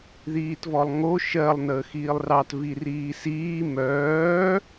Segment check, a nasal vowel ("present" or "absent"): absent